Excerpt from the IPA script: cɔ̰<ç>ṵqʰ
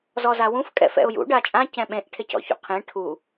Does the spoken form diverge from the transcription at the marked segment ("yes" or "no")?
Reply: no